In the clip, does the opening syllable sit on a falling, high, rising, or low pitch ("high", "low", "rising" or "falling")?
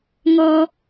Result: high